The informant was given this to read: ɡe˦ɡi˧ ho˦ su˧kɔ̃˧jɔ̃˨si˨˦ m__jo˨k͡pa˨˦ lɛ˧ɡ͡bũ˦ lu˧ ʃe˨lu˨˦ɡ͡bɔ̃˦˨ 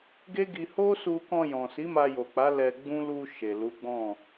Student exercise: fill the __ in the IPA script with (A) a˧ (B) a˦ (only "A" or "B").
A